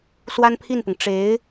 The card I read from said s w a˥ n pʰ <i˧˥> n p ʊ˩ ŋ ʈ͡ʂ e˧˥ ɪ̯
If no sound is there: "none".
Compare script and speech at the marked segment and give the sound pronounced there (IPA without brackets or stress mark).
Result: i˥˩